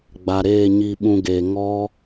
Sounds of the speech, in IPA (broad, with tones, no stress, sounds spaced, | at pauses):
ɡ͡b a˨ ɾ eː˦˨ ɲ i˧ ɓ ũ˧ ɡ eː˨ ŋ ɔ˦